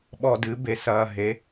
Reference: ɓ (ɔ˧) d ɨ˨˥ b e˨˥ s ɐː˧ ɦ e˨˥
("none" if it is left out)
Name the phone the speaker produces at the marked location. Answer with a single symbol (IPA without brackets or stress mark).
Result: ɔ˧